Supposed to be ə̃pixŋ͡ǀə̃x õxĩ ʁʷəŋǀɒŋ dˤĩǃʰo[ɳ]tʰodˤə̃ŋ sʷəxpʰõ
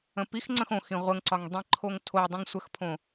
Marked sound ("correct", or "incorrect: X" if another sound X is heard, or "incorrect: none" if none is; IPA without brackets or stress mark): incorrect: ŋ